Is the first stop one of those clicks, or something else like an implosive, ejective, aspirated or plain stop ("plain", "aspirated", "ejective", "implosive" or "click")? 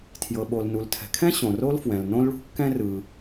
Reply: aspirated